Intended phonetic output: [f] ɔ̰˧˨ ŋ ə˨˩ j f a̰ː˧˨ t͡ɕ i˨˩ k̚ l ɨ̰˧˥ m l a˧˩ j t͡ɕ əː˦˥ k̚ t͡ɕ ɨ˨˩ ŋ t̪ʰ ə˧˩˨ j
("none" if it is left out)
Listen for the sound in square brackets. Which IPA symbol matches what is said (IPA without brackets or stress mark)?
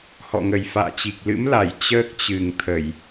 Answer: h